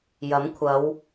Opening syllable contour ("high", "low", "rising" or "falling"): rising